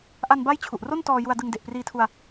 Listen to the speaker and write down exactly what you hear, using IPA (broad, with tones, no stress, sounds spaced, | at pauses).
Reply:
ʔ a˧ n b a˦˥ j t͡ɕʰ u˨˩ ʔ r o˥˩ n t ɔː˧ j u˧ a̯ d ɯ˧ ŋ d e˨˩ ʔ p r iː˧ tʰ u˧ a̯